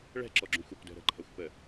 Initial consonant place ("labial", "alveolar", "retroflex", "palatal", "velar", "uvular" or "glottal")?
retroflex